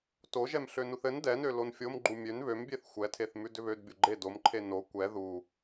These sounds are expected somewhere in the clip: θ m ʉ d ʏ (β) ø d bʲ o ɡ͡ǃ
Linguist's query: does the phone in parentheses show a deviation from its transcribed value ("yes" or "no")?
no